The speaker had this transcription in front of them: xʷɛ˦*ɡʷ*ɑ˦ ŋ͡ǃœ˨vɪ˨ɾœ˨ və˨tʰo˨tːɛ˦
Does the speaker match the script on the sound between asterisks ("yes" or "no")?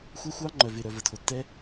no